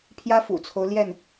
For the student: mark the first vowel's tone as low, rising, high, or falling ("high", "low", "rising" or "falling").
high